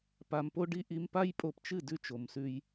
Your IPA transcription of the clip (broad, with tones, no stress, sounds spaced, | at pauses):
p a˧ m p o˦ ɖ i˦ ʔ i˧ m p a˦ j pʼ o˧ p t͡ʃ ɨ˦˨ d ʉ˦ t͡ʃ o˨ m s ʉ˧ j